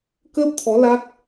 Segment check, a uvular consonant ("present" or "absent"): absent